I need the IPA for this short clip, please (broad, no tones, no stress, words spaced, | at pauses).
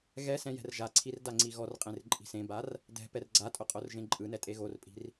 ɣɛsɛ̃ jɛ̤rʒaǀʰir daŋ͡ǀiɣɔrqʼẽr ǃʼi̤sẽbar | dɛ̤ pɛrɡ͡ǀatʼo qʼorʒẽǃʼɯnɛ tʼeɣorpʼi̤r